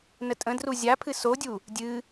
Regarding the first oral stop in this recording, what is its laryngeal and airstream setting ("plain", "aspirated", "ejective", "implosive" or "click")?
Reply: ejective